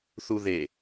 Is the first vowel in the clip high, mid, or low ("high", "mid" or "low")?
high